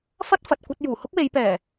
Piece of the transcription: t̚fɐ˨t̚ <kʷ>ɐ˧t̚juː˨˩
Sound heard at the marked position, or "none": kʷ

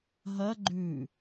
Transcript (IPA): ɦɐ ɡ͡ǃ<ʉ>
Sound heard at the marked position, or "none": ʉ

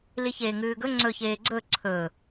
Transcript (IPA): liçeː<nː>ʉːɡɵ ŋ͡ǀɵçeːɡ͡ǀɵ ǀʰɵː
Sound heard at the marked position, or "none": ŋ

